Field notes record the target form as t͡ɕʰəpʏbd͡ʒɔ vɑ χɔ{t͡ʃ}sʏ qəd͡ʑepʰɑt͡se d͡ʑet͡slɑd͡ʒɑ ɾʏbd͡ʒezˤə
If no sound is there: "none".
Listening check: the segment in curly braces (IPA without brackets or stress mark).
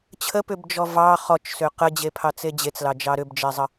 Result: t͡ʃ